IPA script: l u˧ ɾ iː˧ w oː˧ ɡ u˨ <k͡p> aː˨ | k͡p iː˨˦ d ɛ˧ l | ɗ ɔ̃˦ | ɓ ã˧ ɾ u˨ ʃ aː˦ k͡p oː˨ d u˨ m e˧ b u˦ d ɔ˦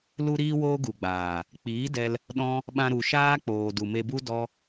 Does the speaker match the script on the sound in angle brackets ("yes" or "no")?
no